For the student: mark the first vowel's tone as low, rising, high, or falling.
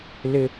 high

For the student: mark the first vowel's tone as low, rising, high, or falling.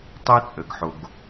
high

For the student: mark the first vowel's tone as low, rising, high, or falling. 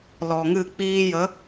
low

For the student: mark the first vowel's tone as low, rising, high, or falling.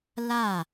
falling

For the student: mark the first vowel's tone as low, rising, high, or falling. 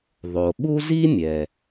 low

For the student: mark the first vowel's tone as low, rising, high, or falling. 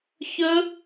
high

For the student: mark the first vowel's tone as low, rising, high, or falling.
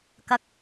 low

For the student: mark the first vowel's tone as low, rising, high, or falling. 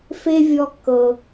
high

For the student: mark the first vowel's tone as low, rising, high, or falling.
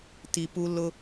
low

